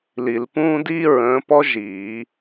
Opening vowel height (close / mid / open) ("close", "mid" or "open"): close